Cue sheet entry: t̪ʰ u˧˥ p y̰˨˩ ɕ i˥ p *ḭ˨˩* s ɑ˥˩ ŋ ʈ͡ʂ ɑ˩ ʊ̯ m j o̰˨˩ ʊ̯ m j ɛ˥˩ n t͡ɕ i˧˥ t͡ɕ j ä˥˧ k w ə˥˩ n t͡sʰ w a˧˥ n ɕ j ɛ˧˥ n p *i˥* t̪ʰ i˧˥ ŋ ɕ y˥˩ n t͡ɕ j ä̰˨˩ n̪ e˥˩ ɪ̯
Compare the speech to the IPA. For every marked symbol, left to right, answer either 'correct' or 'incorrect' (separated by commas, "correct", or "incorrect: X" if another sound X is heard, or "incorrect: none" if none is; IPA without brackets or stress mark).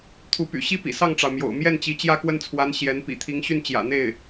correct, incorrect: ḭ˨˩